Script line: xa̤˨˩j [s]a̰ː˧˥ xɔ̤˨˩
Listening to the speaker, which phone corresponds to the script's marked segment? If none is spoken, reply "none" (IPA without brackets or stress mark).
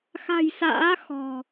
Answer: s